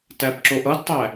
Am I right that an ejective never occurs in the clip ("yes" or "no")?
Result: yes